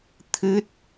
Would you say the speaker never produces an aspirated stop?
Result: no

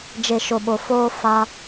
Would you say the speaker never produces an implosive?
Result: no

